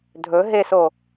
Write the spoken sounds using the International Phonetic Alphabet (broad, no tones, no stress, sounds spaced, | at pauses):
dʱ ɵ ɦ e s o